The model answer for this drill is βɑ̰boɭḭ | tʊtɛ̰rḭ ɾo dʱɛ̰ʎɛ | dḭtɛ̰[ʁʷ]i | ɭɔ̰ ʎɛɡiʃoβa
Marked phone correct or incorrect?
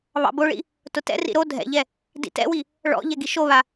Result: incorrect